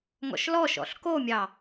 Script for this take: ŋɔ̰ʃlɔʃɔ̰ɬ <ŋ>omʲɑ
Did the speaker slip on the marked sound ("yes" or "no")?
yes